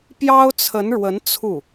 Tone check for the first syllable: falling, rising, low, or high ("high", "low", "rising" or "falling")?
high